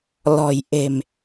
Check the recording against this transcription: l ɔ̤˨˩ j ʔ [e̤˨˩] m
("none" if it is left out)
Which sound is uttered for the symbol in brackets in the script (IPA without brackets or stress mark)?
e̤˨˩